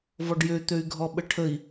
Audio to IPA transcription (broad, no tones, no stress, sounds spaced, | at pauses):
v ɔ ɖ j ø t̪ ø y̯ ɡʱ ɔ ɓ ə ʈʰ ə i̯